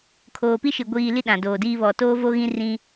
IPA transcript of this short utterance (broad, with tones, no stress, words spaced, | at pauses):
kʰoː˨pi˦ʃi˨ ɡʷiː˨ li˦ɗã˨ doː˨diː˦ βɔ˨toː˦vo˦ɣĩ˦ rĩ˦